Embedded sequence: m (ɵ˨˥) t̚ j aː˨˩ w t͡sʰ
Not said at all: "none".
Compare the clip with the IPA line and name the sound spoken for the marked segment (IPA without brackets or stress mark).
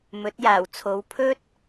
ɵ˨˥